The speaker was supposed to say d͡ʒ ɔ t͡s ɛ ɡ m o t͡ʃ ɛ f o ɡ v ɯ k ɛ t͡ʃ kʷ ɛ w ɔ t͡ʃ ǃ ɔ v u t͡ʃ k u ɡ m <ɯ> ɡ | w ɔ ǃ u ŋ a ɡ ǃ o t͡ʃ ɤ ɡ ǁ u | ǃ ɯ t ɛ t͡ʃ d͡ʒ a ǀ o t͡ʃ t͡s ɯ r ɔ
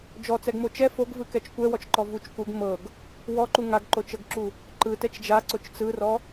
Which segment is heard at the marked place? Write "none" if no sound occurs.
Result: ɤ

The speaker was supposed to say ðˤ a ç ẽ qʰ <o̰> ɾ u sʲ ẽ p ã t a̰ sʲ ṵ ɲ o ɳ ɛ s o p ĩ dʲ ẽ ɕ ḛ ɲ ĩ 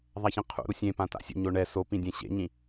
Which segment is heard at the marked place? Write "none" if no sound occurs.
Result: ṵ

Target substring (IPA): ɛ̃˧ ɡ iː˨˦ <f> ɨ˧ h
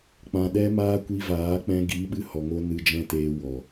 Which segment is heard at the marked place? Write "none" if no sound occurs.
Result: ɓ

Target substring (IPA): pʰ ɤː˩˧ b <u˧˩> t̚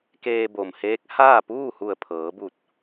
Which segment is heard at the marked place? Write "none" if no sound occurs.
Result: u˧˩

